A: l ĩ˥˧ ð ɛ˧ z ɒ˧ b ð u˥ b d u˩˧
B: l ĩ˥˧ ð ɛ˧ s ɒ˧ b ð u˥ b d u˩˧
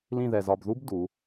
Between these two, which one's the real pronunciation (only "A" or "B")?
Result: A